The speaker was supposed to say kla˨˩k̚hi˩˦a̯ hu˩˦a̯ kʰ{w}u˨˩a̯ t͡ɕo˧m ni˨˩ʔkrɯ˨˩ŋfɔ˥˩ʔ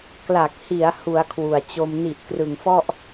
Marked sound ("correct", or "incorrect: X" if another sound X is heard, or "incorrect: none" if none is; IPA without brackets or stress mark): correct